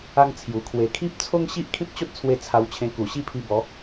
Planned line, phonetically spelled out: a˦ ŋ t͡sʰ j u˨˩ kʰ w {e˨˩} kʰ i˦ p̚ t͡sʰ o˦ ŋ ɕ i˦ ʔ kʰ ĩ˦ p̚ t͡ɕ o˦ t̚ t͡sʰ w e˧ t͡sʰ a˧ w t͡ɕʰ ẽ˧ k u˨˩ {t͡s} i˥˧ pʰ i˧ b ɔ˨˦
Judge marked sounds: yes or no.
yes, no

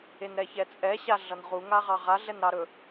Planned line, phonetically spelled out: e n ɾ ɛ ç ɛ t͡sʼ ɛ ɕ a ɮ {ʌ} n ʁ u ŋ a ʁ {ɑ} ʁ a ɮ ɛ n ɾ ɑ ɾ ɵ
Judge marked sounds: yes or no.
yes, yes

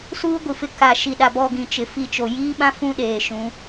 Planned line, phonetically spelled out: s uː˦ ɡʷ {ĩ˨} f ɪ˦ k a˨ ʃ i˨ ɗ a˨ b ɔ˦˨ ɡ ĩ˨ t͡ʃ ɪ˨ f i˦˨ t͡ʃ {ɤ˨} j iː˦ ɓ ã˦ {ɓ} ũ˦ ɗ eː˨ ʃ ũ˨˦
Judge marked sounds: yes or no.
no, no, no

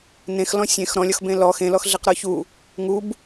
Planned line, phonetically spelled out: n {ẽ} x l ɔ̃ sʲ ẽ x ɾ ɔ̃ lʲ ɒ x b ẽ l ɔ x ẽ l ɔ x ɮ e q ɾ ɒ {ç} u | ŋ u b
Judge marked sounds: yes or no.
yes, yes

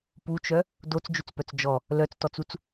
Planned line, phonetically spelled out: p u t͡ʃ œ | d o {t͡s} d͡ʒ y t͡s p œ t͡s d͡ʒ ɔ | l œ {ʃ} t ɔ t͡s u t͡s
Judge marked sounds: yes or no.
yes, no

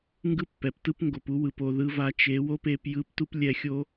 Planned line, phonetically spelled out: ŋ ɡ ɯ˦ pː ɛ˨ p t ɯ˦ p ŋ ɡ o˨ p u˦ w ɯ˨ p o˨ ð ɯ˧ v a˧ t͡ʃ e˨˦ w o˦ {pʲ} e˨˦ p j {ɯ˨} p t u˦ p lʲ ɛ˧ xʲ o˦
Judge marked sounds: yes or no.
no, no

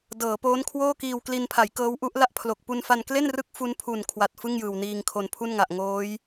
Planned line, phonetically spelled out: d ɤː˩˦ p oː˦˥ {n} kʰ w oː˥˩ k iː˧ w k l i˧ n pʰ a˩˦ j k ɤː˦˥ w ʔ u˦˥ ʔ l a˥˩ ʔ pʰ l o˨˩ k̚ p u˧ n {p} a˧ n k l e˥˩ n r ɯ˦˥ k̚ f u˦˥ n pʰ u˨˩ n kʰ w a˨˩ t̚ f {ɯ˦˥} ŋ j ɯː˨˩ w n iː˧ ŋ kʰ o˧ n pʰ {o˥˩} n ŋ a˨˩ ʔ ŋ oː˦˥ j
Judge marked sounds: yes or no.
yes, no, no, no

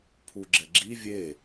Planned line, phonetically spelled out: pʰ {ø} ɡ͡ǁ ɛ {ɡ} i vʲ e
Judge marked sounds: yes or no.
no, no

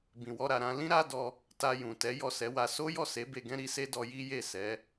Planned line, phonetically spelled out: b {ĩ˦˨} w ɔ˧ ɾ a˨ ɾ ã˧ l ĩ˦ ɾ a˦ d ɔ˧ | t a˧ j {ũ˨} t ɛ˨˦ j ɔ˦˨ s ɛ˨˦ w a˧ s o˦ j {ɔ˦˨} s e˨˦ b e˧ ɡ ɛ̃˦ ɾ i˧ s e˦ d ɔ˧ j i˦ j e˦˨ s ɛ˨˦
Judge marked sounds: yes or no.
no, yes, yes

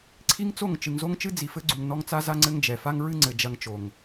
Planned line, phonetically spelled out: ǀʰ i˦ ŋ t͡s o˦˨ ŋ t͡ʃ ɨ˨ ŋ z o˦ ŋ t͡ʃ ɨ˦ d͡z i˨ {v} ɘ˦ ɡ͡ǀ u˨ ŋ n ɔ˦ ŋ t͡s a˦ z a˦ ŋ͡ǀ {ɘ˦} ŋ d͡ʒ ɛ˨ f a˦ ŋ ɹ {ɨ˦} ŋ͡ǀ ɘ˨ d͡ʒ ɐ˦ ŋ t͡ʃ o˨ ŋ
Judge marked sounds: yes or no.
no, yes, yes

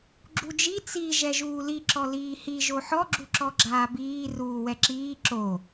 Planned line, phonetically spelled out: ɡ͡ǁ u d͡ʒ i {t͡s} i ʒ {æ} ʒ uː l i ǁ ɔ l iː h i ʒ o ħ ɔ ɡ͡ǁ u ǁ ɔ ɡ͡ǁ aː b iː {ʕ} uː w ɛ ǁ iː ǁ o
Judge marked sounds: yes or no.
yes, no, no

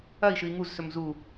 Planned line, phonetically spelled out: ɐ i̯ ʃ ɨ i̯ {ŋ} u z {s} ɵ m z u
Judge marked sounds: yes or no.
yes, yes

